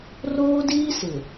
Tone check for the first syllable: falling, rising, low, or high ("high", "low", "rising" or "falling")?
high